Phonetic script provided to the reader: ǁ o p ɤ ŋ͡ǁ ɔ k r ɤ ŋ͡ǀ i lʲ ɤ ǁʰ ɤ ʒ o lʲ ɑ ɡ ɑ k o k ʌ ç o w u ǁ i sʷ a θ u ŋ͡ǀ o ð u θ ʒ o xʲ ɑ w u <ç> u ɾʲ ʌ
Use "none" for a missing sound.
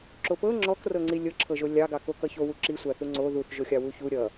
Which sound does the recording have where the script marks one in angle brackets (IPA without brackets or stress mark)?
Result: ç